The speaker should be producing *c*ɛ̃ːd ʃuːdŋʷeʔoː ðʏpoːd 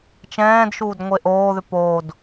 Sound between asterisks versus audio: incorrect: t͡ʃ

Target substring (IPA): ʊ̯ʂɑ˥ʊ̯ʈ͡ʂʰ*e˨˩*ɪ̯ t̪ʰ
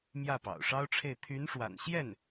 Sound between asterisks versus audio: incorrect: e˥˩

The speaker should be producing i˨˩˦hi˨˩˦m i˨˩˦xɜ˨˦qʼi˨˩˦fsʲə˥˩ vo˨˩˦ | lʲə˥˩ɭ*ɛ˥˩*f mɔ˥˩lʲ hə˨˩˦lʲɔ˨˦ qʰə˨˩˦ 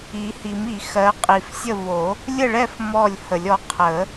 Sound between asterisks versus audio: correct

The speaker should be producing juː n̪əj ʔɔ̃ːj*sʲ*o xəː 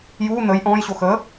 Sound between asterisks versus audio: incorrect: ɕ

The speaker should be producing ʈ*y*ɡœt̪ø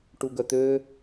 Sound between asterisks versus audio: incorrect: u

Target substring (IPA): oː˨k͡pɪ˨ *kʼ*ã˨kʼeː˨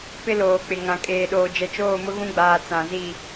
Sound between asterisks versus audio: incorrect: ŋ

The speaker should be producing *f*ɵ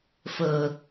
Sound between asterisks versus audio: correct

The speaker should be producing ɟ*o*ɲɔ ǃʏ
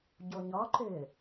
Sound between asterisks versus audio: correct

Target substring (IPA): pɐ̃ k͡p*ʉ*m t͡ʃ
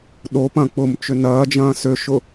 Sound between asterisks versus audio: incorrect: ʊ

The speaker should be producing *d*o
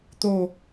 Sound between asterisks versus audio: incorrect: t̪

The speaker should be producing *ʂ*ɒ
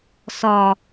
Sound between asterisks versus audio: incorrect: s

